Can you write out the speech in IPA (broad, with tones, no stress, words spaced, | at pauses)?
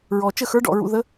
ɹɔ˨˩t͡ʃə˥˩xə˞˧˥ ɖɔ̰˥˩ɹṵ˧ ðə˧˥